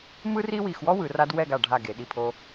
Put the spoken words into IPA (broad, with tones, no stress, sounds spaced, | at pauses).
m ɯ˥ r i˥ w i˧˩ x w ɔ˥ w ɯ˩˧ r a˧ d w ɛ˥˧ ɡ a˧˩ ɖʱ a˧˩ ɡ e˩˧ ɗ i˧˩ pʰ o˧